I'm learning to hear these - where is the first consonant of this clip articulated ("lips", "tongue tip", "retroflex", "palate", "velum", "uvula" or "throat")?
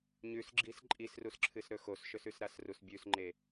palate